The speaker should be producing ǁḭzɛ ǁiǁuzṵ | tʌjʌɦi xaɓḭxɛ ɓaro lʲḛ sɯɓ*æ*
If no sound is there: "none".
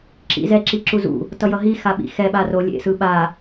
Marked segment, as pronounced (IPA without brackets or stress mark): a